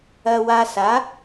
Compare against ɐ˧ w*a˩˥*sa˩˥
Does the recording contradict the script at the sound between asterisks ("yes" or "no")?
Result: yes